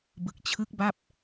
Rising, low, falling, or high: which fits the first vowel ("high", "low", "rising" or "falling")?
low